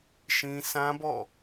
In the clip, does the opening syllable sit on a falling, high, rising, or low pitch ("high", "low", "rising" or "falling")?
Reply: high